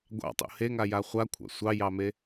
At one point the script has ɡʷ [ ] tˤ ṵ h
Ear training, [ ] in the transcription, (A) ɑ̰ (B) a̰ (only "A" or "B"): A